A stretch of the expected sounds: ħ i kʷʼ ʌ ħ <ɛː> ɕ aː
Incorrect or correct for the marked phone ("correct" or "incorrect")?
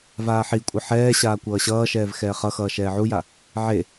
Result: correct